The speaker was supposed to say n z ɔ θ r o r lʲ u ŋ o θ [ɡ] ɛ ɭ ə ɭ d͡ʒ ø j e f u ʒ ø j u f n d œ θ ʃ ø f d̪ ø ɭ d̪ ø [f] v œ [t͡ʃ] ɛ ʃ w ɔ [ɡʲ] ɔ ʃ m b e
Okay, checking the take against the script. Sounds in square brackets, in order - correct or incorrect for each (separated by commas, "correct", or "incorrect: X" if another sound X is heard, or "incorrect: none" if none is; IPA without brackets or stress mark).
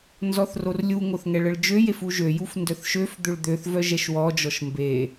incorrect: ŋ, incorrect: θ, incorrect: ʒ, incorrect: d͡ʒ